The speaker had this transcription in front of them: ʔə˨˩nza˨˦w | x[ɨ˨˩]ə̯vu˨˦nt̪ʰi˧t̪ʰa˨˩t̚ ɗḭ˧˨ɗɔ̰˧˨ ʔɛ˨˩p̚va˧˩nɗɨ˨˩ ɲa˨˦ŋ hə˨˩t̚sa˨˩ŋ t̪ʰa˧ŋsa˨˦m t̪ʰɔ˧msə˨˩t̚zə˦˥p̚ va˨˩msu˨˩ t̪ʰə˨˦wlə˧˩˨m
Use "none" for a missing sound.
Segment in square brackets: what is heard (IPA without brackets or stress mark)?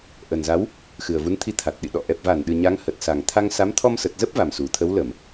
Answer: ɨ˨˩